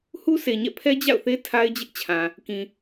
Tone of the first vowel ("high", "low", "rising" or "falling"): high